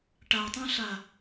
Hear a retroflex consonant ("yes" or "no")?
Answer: yes